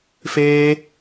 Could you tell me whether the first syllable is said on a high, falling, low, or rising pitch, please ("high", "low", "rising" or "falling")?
high